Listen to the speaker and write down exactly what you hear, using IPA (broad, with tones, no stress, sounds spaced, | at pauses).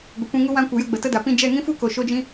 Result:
ɡʷ ə˨ kʷ ĩ˧ ŋ u˧ w ã˧ kʷ ə˨ j ə˧ ɡ͡b ə˨ t ə˦ d a˨ p ĩ˧ d͡ʒ ɛ˦˨ ŋ ĩ˦ f u˦ k o˨ ʃ o˦ d͡ʒ ĩ˦